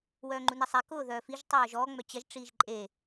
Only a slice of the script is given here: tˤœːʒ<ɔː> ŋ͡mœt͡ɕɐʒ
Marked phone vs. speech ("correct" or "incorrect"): correct